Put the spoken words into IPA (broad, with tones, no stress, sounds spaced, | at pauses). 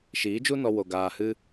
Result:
ʃ iː˨˦ d͡ʒ u˦ n ɔ˧ w o˧ ɡ aː˧ h ɨ˦